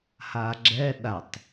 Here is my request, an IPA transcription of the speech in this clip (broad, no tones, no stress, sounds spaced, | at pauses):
h a ɡ͡ǁ ɛ ɗ a tˤ